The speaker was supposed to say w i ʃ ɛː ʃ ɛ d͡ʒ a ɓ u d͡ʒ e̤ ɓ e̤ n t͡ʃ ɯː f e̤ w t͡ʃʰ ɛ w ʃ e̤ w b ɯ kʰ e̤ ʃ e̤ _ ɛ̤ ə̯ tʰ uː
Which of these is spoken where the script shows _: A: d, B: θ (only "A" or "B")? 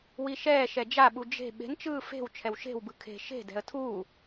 A